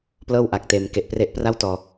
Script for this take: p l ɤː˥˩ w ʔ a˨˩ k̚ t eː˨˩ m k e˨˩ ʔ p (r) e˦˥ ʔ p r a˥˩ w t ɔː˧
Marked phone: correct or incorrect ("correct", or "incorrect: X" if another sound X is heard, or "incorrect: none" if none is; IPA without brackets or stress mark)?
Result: correct